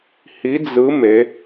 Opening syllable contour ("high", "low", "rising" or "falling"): rising